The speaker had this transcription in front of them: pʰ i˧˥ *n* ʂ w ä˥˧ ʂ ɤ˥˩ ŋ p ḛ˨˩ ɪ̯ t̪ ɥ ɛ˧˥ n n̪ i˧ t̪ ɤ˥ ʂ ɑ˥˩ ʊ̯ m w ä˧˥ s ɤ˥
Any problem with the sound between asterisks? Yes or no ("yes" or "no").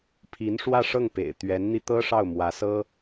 no